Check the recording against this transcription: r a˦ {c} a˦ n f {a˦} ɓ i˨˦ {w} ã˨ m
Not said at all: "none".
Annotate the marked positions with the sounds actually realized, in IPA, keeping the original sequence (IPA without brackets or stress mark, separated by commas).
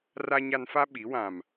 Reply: ɲ, a˦, w